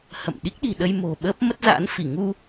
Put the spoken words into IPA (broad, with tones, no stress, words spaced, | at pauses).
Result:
hə̰˧˨m ɗi˦˥k̚ɗi̤˨˩ɗə˧j mo̤˨˩ ɓəː˦˥p̚mə˦˥t̚za̰ː˧˥nfi˧˩ ŋu˧